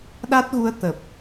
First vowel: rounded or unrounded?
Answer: unrounded